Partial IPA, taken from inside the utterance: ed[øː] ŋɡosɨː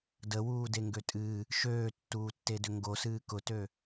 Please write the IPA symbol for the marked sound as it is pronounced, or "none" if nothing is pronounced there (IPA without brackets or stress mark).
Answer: ø